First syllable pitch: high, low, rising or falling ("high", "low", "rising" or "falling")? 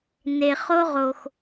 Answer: low